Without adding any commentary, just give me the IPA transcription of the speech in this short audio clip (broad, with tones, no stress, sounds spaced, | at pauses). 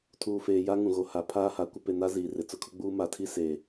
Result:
tʰ uː˨ f eː˨ j a˦ ŋ ũ˨ ɣ o˨ h a˨ pʰ aː˦ h a˨ kʷ ɪ˦ p e˨ n a˦ z iː˨ r ɪ˨ t͡s ʊ˦˨ kʰ ʊ˦ ɡ͡b uː˦ m a˨ tʰ i˦ s e˨